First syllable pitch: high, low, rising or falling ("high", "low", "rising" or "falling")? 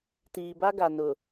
low